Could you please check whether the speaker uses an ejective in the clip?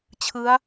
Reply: no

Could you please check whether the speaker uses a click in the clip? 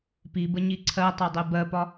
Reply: yes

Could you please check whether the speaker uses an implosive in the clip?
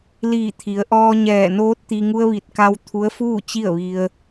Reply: no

